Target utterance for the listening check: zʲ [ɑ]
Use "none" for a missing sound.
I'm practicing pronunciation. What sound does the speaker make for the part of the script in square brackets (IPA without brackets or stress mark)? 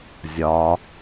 ɒ